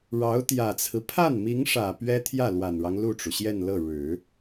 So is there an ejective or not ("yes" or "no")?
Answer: no